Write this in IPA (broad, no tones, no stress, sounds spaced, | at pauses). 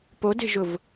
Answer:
p o d e̤ ʒ ʊ v